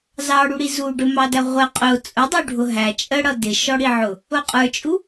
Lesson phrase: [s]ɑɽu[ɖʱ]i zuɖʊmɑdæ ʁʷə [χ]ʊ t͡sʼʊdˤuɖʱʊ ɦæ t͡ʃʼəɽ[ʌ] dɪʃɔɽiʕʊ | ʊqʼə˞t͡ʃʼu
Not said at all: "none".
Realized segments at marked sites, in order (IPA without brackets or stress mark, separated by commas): z, ɽ, qʼ, ʌ